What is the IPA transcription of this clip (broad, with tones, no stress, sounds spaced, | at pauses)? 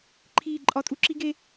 ǃʰ iː˦˨ ǃʼ ɒ˦ tʼ u˦ ǁ i˦ ɡ e˦